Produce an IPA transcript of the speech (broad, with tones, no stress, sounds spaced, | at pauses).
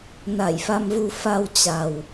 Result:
n a˧˩ j f a˧ m v u˧ f a˧ w t͡ɕ a˨˩ w